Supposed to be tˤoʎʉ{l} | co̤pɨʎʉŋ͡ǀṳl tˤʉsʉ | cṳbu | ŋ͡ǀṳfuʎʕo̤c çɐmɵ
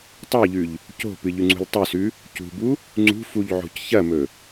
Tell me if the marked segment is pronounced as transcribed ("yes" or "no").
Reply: no